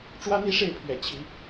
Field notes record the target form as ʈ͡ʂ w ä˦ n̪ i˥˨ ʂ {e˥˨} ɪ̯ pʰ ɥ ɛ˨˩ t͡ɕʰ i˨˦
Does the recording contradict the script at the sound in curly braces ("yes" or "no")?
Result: no